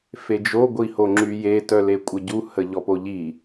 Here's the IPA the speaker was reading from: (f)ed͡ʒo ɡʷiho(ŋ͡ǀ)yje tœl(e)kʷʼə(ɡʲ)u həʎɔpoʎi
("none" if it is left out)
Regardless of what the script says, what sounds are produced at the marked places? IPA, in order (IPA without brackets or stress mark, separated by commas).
f, ŋ͡ǁ, e, ɟ